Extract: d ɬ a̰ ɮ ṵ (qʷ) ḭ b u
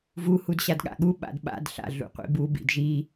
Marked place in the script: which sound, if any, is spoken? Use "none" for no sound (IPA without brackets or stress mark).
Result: qʷ